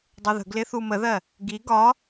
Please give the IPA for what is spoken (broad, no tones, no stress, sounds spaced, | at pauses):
dˤ u ð ə̤ ɡ l ɪ θ u m ə ð ɜ | ɡ i ɡ ɒ